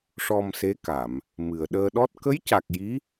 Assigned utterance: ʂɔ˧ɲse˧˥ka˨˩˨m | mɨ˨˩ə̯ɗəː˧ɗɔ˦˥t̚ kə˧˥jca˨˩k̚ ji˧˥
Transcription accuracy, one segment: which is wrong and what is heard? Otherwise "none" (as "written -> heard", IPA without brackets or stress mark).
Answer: ɲ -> m